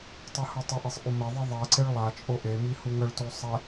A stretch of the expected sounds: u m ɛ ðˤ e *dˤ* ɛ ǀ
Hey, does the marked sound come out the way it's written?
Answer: no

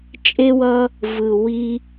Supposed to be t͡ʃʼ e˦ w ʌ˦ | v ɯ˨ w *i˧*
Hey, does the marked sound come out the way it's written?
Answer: yes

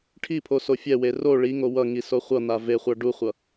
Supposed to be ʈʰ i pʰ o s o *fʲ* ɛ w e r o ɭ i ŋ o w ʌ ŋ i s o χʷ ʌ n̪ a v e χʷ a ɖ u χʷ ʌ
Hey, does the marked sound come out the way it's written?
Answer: yes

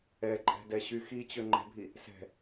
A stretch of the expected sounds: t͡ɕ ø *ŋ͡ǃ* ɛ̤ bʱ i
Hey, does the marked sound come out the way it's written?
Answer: yes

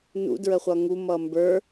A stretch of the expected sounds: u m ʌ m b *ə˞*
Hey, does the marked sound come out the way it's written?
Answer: yes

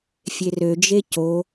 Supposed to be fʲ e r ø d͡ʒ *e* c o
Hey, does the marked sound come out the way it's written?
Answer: yes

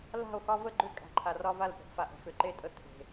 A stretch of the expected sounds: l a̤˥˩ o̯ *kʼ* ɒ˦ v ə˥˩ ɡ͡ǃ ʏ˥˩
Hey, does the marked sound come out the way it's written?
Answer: no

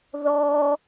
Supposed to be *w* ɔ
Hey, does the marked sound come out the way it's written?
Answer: no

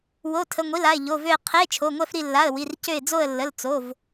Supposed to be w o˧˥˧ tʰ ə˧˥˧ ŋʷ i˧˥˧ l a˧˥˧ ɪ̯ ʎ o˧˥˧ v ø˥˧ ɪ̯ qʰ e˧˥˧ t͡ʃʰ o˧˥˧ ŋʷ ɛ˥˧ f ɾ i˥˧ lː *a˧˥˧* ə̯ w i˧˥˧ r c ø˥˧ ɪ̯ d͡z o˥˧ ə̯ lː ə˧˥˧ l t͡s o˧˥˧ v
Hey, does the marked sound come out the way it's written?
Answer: yes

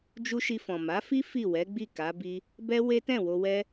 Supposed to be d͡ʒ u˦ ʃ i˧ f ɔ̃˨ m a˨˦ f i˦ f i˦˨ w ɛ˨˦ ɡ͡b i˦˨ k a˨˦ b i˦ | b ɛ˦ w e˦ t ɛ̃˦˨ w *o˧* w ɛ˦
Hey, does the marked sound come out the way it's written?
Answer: yes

